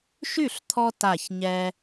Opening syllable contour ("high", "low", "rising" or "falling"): falling